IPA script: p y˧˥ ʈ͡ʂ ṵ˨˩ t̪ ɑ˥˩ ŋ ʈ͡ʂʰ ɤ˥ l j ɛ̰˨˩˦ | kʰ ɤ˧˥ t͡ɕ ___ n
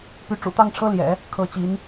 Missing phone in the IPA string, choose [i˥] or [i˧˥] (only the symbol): i˧˥